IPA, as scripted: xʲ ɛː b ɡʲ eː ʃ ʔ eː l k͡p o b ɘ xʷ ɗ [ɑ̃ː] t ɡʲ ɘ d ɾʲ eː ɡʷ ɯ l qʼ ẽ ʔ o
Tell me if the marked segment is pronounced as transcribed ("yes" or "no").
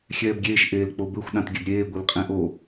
no